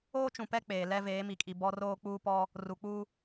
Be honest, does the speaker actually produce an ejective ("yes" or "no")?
yes